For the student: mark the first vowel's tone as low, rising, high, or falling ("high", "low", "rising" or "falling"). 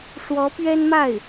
rising